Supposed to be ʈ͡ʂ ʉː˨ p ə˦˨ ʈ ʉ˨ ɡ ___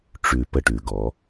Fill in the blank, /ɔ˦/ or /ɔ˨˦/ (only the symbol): ɔ˨˦